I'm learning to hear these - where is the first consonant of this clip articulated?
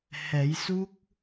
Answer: throat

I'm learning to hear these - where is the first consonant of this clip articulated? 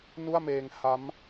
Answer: tongue tip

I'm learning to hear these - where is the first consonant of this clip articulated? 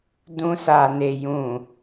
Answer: tongue tip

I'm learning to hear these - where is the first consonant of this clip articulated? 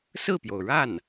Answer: tongue tip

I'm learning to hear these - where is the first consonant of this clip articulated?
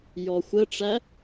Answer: palate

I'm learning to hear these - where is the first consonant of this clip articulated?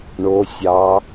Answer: retroflex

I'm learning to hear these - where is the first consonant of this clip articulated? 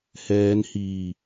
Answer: throat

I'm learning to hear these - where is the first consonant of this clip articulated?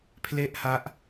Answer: lips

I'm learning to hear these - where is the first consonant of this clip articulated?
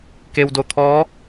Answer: velum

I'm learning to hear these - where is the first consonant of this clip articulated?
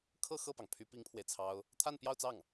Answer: velum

